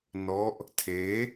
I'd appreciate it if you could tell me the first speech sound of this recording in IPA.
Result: n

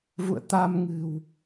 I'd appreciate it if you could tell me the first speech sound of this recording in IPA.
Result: v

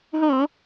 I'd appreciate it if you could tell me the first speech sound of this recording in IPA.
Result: ɦ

